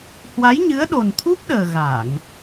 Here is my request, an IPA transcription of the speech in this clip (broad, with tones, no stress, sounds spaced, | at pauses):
h w a˨˦ j ɲ ɨ˨˦ ə̯ ɗ o˨˩ n t̪ʰ u˦˥ p̚ ɗ əː˨˩ ɣ a˧˩˨ ŋ